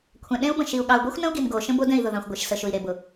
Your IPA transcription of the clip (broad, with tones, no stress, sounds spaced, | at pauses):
kʷʰ ɛ̃˨ ɗ ẽ˦ u̯ b ə̃˨ ʃ i˨ u̯ ɠ ɑ˨ u̯ ɡʷ i˦ xʷ n ə̃˦ u̯ ɡ i˨ n ɡ o˨ ʃ ə̃˦ b o˦ d ɛ̃˦˨ i̯ ð ʊ˨ ð ɑ̃˨ xʷ ɡʷ e˨ ʃ s ə˨ ʃ ʊ˨ i̯ ɾ e˨ b ʊ˨